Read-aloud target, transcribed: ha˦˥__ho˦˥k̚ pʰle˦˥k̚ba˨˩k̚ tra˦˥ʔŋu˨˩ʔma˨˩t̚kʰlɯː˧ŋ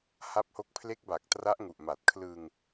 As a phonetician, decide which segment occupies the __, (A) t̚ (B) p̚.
B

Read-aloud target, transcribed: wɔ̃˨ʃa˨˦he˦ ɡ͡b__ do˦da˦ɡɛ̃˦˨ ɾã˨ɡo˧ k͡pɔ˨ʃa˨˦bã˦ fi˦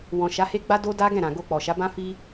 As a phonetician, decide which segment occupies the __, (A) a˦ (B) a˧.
A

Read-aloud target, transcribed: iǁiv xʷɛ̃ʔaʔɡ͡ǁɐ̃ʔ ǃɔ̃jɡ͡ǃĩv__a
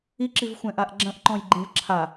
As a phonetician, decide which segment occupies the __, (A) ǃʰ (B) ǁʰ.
B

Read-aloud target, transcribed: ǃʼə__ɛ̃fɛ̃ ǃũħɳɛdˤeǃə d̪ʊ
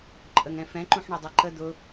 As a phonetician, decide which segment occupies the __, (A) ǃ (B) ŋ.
B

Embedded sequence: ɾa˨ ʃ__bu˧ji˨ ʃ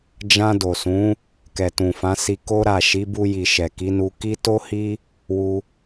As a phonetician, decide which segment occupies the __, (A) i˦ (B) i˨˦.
B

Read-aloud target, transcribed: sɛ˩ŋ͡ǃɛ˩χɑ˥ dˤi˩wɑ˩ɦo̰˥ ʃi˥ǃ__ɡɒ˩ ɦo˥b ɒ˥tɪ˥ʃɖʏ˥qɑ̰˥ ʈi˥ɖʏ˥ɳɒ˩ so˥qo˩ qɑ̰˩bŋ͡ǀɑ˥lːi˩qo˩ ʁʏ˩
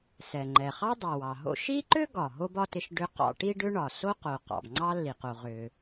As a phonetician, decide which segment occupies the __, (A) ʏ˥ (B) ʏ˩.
A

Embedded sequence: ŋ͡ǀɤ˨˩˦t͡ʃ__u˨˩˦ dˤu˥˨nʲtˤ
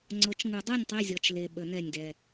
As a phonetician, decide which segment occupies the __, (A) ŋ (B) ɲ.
A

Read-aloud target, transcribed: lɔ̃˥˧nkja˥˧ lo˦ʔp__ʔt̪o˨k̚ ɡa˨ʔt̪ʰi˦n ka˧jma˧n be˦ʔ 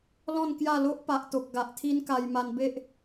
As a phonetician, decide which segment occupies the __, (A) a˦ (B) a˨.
B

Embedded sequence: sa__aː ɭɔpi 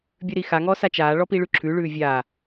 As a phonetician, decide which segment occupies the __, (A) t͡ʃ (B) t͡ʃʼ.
A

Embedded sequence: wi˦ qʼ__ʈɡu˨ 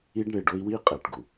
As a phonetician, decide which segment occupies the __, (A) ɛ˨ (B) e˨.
A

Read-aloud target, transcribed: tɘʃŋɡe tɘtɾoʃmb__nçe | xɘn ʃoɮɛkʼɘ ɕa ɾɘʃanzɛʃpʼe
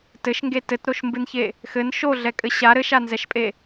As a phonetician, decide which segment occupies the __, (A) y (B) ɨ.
B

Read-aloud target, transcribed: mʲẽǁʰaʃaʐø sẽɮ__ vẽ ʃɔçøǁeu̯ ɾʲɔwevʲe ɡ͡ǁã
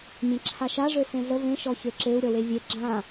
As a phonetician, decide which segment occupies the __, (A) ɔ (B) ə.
B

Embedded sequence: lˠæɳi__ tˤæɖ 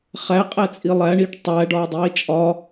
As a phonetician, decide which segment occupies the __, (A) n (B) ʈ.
B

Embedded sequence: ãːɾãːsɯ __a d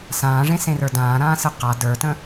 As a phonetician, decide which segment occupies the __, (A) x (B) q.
B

